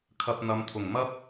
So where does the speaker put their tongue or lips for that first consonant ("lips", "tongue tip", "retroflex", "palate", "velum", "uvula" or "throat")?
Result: velum